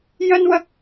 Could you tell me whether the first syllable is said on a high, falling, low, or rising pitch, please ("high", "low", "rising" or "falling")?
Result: high